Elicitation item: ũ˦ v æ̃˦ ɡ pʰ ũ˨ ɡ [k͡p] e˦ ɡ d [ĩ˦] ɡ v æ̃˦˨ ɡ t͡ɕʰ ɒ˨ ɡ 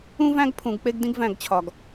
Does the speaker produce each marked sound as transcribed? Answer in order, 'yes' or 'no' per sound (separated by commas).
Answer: yes, yes